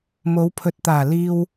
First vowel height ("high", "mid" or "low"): mid